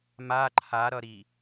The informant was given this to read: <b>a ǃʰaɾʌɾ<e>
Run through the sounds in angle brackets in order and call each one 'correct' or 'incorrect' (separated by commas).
incorrect, incorrect